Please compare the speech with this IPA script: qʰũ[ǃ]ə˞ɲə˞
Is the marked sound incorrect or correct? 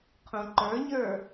correct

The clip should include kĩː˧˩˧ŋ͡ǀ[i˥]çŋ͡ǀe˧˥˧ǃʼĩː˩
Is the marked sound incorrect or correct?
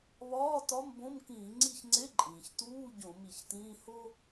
incorrect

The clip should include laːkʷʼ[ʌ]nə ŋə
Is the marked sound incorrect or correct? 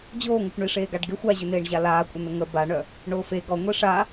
incorrect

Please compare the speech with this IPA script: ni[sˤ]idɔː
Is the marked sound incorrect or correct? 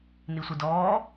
incorrect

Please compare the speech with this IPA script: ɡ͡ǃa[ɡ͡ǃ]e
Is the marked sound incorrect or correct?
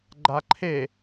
incorrect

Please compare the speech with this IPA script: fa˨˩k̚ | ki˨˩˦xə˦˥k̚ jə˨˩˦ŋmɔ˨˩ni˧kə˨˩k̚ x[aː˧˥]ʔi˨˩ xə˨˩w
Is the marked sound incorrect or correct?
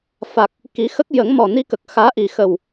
correct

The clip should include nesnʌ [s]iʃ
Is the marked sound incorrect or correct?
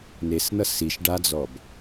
correct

